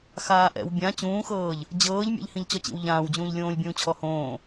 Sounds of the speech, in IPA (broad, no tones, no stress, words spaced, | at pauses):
xaːʔɛ̰w bʲã t͡ɕũːxɤːʎ | d͡ʑɤːʎ mʲɛ̰ʎhĩʎt͡ɕɔt͡ɕḭw ʎãːwd͡ʑũːʎlʲõːlʲ bʲũːt͡ɕʰɔhõː